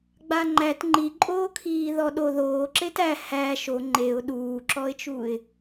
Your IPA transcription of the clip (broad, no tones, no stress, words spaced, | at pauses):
ɡ͡baŋ͡ǃæt ŋ͡ǃiǃʼoːkʰiː ðɔɗo ðoːǁet æ hæ ʃo ŋ͡ǃeʊ̯ ɗuːǁɔɪ̯t͡ʃuɪ̯